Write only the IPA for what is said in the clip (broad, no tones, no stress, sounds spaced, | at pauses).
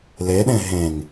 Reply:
l e ɗ ẽ ɦ ẽ ŋ